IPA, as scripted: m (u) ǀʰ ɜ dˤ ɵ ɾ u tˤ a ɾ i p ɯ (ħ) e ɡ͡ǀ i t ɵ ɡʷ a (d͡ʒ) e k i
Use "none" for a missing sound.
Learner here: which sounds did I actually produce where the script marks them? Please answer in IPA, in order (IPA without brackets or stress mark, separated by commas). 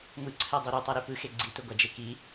ɯ, x, d͡ʒ